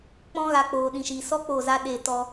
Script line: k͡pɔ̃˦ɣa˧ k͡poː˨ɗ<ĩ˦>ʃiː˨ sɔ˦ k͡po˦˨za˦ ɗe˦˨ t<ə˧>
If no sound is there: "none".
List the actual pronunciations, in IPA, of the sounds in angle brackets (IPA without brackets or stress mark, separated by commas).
ĩ˨, ɔ˧